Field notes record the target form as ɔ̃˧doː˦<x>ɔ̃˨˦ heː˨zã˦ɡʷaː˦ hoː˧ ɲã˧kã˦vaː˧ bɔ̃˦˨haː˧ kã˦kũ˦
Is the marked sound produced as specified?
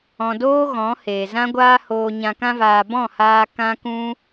no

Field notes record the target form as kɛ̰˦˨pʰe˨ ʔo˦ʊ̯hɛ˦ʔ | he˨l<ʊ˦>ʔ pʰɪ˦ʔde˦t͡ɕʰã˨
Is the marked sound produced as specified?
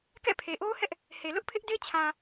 yes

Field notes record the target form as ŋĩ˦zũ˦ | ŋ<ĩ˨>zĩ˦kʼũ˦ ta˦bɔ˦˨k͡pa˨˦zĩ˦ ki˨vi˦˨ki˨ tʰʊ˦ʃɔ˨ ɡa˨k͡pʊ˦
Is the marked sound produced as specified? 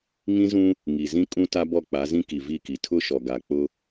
no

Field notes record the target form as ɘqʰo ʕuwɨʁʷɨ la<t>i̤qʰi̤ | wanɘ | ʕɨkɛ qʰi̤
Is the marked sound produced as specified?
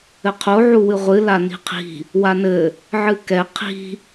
no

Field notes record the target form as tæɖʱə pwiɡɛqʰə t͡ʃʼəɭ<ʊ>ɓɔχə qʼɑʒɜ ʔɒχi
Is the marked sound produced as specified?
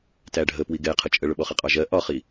yes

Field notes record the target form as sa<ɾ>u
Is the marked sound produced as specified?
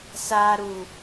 yes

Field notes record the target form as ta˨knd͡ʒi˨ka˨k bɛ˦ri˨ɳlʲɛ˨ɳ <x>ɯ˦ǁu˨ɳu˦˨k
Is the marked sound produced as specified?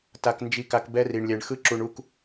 yes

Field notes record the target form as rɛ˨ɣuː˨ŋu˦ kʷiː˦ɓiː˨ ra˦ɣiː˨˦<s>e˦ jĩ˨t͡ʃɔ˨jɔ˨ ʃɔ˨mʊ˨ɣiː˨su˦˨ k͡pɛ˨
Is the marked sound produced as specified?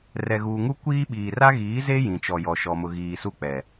no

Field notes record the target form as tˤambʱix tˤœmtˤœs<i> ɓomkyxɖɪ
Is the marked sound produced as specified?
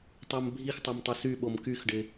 no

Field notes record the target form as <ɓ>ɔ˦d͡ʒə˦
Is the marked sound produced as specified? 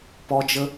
no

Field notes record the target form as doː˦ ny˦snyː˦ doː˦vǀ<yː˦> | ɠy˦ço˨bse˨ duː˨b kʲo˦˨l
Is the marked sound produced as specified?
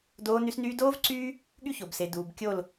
yes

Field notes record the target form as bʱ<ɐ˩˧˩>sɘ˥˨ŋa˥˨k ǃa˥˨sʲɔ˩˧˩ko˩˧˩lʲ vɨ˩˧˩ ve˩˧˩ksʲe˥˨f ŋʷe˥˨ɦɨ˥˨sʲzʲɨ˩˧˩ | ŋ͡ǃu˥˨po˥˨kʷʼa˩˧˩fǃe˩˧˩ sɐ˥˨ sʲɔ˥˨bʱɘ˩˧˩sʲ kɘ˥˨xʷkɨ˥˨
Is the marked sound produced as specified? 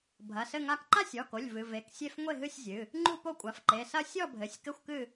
yes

